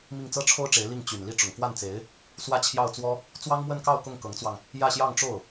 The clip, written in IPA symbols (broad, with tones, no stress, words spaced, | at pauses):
mi˥˩ŋt͡sɤ˥ʈ͡ʂʰo˥ʊ̯ʈ͡ʂe˧˥ɪ̯ li˥˩ŋ t͡ɕy˨˩nli˥˩ ʈ͡ʂʊ˨˩ŋkwa˥˩nt͡se˧˥ɪ̯ | swä˥˧t͡ɕʰjɑ˥˩ʊ̯t͡swɔ˥ | t͡swɑ˥ŋmwə˥˧nkɑ˥˧ʊ̯ kʊ˥˩ŋkɤ˧˥ŋt͡swɑ˧ŋ | jä˥˧ɕjɑ˥˧ŋʈ͡ʂo˥˩ʊ̯